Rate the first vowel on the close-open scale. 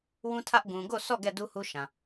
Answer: close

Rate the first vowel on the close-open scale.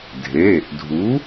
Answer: mid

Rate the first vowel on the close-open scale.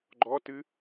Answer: mid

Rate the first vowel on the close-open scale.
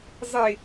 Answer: close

